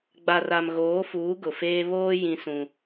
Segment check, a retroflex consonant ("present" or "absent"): absent